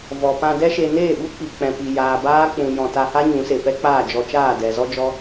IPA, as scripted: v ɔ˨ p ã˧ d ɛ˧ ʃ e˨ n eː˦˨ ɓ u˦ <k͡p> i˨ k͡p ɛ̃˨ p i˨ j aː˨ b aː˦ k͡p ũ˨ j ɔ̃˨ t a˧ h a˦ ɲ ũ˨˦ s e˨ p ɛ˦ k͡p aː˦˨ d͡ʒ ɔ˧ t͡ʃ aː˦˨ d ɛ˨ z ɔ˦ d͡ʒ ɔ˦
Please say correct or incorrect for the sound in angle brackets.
correct